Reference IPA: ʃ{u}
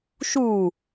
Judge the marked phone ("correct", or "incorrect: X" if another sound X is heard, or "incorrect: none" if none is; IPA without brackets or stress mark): correct